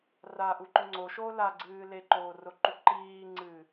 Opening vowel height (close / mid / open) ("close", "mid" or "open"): open